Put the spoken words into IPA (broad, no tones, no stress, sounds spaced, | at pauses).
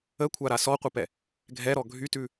ə kʷʰ a ɾ a s ɔ qʷ ə p ɛ | ɡʱ ɛ ɾ ɔ ɡʱ y t ʉ